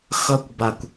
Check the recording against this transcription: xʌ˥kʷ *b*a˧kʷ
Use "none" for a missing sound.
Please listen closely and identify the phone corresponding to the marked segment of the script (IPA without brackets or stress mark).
b